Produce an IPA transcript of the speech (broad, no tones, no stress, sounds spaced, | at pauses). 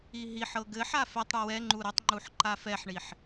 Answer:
i ɦ i ħ ɤ ɡ ɘ ħ a f ɛ tˤ ɽ u w ɛ ŋ͡ǃ u ɾ ə tˤ ŋ͡ǃ u ħ ǃ a f ɛ ħ ɳ i ħ